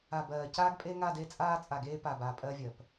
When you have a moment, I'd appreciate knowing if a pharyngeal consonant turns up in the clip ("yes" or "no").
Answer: no